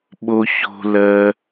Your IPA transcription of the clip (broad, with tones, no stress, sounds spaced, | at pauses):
ɓ o˧ ç o̤˧ l ɜ˧